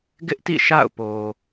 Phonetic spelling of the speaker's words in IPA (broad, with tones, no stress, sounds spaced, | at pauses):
ɡ ɪ˦ ʔ t ḭ˦˨ ʃ a̰˦˨ ʊ̯ p o˨